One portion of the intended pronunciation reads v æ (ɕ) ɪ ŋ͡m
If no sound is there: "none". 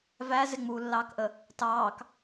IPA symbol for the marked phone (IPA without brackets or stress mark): z